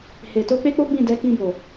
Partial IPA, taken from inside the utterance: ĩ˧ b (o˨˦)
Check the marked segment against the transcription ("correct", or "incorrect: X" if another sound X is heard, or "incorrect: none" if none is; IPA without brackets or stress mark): incorrect: o˨